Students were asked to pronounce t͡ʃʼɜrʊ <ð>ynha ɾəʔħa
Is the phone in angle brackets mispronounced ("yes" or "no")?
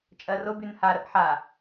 yes